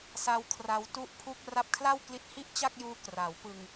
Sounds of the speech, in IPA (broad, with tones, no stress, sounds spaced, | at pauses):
s a˧ w kʰ r a˧ w t u˦˥ ʔ pʰ u˦˥ k̚ r a˦˥ p̚ kʰ l a˥˩ w k l i˦˥ t̚ h i˥˩ ʔ t͡ɕ a˥˩ k̚ j uː˦˥ k r a˩˦ w p ɯ˧ ŋ